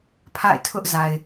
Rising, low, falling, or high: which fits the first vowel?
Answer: falling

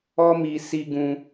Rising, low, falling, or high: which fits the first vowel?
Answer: high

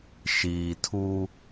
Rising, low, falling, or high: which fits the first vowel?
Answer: low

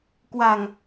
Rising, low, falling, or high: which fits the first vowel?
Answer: low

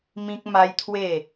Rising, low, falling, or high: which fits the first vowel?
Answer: high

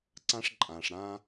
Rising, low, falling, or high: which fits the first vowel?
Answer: high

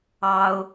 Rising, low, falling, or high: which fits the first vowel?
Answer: high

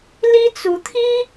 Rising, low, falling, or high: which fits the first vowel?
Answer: high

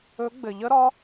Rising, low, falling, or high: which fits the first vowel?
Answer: rising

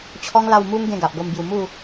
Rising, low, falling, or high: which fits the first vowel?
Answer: high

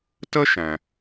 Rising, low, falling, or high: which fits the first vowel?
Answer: high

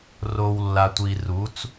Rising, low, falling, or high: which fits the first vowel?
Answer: low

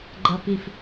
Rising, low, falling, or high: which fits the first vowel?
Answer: low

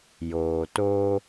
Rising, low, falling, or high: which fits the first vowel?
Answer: low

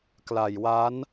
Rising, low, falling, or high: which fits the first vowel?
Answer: low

